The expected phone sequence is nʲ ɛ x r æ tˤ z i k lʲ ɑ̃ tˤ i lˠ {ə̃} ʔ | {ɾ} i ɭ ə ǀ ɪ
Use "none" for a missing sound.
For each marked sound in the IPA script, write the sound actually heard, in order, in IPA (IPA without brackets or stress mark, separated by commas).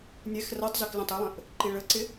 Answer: ə̃, ǃ